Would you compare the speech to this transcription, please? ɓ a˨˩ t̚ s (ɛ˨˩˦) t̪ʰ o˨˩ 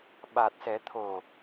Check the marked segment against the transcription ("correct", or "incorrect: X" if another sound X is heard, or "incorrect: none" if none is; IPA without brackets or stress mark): correct